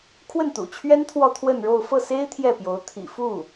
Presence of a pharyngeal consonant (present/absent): absent